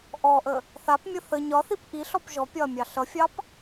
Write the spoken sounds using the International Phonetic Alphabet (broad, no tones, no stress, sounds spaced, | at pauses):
ʔ ɔ ʔ ə | θ a p mʲ ə θ ə ɲ ɒ θ i p ʔ i ɬ ɔ p ʒ ɔ pʲ ɒ ɐ̯ mʲ ɑ ɬ ʌ fʲ ɑ p